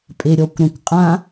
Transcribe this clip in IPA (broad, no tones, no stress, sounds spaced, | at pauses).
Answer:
pʼ e ɾʲ ɔ kʷ ɾ ɐ̃ kʷ qʼ ã